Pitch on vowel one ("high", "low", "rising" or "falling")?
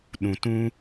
low